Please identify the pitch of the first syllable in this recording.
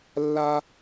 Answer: high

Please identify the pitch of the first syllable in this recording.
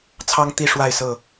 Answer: high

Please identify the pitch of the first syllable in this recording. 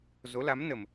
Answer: rising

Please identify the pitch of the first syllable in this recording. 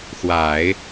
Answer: low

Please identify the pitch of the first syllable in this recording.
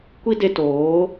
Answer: high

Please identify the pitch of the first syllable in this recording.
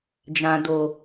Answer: low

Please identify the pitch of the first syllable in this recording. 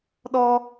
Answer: high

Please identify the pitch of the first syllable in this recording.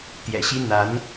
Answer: low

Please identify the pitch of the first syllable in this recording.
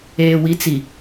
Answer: low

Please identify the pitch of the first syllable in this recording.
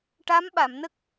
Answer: rising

